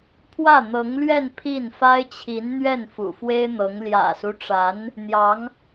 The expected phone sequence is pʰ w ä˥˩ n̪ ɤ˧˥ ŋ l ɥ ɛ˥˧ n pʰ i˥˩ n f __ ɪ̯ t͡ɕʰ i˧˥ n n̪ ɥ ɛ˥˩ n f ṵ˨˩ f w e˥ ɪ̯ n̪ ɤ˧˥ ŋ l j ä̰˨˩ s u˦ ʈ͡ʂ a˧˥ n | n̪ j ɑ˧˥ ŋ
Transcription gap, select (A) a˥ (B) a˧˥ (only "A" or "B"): A